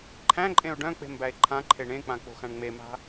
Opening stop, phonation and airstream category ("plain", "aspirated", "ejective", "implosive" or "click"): click